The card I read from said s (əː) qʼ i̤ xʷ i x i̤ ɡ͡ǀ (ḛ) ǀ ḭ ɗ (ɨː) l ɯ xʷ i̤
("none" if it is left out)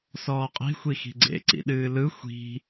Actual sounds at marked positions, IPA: ɔː, ḛ, ɨː

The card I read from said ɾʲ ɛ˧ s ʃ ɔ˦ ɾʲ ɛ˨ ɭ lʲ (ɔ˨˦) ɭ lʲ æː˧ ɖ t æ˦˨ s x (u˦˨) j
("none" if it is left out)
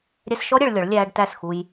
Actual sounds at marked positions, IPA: ɔ˨˦, u˧

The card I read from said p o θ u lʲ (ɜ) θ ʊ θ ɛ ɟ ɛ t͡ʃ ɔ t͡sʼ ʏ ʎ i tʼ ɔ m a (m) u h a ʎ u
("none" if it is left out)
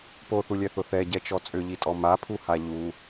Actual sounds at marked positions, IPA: ɛ, pʰ

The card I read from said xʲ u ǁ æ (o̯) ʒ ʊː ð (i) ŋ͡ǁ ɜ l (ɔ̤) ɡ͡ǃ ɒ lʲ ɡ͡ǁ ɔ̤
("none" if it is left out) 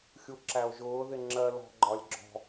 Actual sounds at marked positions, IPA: o̯, ɪ, ɔ̤

